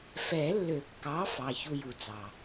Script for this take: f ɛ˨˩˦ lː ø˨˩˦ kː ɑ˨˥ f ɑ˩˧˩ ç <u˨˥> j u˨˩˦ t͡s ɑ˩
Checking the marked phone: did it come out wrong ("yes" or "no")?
yes